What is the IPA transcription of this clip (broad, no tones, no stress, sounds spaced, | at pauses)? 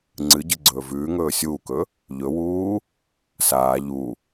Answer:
ŋ͡ǀ ɨ ɟ ɨ ɡ͡ǀ ɵː v ʉː ŋ ɵː sʲ uː k ɵ | ʎ ɵ w uː | s aː ʎ u